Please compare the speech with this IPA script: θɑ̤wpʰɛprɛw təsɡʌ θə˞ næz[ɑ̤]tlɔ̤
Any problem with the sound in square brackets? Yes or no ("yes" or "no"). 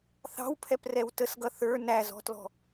yes